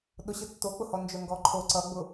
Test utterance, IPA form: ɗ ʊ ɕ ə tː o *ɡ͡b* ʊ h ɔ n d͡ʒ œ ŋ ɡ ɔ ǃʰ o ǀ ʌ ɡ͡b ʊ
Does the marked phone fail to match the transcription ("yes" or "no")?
yes